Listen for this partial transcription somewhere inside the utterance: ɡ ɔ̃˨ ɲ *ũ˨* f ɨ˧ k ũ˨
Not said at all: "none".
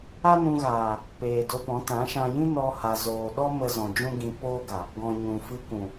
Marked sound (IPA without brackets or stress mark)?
ũ˨